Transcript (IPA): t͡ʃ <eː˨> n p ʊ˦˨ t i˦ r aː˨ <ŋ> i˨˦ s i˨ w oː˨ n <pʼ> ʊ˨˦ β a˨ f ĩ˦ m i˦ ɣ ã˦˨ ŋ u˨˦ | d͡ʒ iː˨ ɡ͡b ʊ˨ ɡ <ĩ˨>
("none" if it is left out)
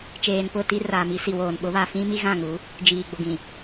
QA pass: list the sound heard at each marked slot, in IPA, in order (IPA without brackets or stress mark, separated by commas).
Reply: eː˨, m, ɓ, ĩ˨